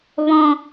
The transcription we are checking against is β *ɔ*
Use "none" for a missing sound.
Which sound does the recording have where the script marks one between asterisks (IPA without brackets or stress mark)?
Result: ɔ̃